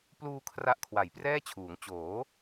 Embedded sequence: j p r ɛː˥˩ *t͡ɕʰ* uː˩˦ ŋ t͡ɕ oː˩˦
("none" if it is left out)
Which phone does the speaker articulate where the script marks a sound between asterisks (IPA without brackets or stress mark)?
t͡ɕʰ